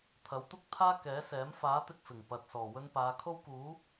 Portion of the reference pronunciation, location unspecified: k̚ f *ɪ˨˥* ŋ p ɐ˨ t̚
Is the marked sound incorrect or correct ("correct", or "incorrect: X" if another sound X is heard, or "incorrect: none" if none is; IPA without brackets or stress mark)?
incorrect: ɪ˨˩